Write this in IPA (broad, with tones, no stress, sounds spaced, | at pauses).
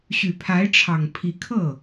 ɕ y˨˩ pʰ a˧˥ ɪ̯ ʈ͡ʂʰ ɑ˨˩ ŋ pʰ i˧˥ kʰ ɤ˥˩